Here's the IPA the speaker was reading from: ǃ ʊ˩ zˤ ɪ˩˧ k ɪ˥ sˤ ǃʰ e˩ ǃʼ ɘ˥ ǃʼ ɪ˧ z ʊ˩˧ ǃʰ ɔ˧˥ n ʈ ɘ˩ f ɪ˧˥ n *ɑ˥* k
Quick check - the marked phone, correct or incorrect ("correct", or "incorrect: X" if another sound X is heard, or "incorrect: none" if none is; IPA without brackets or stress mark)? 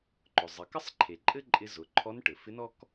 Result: incorrect: ɔ˥